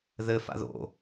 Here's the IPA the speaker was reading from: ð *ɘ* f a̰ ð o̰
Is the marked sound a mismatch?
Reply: no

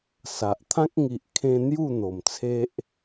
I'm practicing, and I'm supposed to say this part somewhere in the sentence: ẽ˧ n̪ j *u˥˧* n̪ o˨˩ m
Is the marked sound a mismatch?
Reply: no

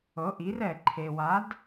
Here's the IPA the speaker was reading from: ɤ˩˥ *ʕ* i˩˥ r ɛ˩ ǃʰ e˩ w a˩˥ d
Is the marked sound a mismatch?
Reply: yes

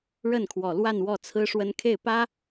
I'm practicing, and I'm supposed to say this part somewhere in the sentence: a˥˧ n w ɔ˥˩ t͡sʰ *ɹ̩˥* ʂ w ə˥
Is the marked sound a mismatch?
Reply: no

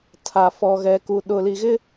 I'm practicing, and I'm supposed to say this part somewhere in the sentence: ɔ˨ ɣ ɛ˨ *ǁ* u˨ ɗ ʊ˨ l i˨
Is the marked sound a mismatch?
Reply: yes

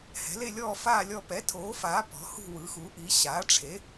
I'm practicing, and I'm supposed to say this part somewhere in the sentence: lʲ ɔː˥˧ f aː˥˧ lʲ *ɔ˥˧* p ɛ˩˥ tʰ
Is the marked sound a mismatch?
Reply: no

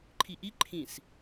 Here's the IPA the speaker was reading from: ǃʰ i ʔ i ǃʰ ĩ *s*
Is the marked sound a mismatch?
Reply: no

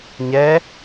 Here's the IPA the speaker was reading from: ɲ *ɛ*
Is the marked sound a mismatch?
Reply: no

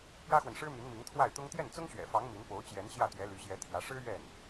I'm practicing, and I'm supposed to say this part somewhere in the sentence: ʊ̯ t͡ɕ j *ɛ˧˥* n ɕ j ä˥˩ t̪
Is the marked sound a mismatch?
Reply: no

